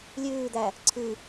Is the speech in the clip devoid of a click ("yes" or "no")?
no